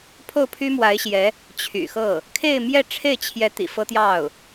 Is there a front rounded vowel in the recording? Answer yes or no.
yes